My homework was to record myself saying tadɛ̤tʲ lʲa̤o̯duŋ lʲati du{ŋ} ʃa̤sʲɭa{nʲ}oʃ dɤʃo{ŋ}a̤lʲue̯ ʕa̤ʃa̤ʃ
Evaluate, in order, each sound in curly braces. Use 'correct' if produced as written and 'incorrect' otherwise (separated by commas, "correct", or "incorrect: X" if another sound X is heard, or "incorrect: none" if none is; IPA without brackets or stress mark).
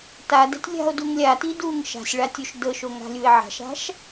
correct, incorrect: tʲ, correct